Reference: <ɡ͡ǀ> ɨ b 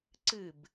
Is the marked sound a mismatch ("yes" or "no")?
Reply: yes